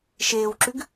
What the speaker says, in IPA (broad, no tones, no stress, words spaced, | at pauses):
ʃeːwǁʉɡ